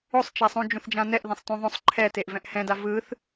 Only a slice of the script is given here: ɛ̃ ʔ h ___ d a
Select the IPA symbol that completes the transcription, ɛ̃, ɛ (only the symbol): ɛ̃